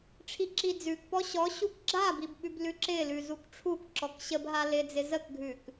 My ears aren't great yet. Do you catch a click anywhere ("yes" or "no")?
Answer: yes